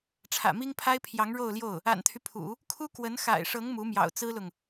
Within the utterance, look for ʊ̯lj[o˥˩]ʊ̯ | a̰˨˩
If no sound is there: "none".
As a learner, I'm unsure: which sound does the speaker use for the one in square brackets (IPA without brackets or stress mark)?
o˥˩